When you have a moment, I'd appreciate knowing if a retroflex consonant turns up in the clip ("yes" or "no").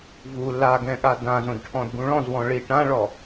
yes